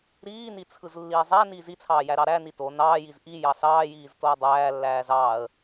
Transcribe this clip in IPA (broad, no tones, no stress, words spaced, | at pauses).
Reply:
ɾiːnit͡sʰɯzlːiː zˤæniː zit͡sʰɑːjæɾɑ ɾæni to nɑːjiz ʔijɑ sɑːjiːztoə̯ dˤæːlːæːz ɑːə̯